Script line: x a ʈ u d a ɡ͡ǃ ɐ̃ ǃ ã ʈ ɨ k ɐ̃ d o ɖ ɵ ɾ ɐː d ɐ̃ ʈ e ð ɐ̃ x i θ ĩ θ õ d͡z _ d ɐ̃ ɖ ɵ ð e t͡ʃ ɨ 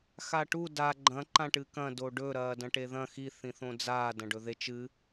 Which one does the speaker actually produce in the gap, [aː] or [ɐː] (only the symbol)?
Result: aː